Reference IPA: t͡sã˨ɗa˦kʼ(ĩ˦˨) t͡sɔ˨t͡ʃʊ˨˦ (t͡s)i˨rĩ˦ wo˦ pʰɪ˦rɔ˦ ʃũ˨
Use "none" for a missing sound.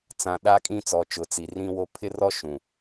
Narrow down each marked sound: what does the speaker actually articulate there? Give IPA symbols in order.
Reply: ĩ˦˨, t͡s

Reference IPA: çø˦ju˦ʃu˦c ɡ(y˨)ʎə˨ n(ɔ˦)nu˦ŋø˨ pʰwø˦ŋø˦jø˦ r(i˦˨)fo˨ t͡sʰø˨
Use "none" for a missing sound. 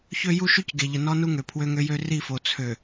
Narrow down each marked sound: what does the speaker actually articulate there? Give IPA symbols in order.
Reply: e˨, ɔ˦, i˦˨

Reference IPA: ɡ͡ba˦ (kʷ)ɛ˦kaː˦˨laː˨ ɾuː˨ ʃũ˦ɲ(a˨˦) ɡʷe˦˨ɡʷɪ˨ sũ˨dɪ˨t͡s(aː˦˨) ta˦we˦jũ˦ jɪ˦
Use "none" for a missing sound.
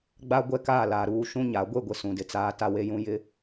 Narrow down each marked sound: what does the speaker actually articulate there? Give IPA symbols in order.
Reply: ɡʷ, a˨˦, aː˦

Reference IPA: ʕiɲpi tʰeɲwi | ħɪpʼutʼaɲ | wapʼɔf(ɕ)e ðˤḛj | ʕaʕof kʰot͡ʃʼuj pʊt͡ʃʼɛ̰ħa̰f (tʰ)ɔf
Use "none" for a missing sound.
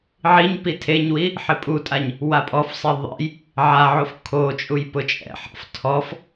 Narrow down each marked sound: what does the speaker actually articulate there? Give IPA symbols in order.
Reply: sˤ, tʰ

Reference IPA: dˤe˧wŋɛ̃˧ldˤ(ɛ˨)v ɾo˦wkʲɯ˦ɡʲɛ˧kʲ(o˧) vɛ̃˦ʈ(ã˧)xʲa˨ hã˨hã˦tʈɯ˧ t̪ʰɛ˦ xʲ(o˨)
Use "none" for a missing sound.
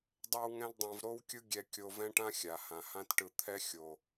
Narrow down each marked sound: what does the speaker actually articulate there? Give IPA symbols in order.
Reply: ɛ̃˨, o˧, ã˦, o˨

